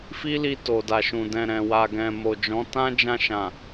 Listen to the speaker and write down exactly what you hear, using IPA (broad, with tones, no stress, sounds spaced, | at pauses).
f i˦ l i˧ t o˨ d a˨ ʃ ũ˨ d ɛ̃˨ ɾ ɛ̃˨ w a˨ ɡ ɛ̃˨ m o˨ d͡ʒ ɔ̃˨˦ t ã˦ d͡ʒ ã˧ ʃ ã˨